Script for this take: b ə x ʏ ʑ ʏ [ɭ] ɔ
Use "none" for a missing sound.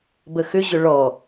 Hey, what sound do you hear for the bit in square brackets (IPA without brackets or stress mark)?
ɭ